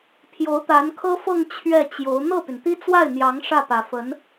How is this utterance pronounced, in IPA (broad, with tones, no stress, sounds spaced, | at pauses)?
pʰ j o˧˥ ʊ̯ t̪ a˧˥ n kʰ ɤ˥ f ɤ˥˧ ŋ t͡ɕʰ ɥ ɛ˥˩ t͡ɕ j o˧˥ ʊ̯ n̪ ɤ˥˩ p y˩ n t̪ i˥ t͡s w a˥˩ ɪ̯ n̪ j ɑ˧˥ ŋ ʂ ä˥˩ p ä˨˩ f ə˧˥ n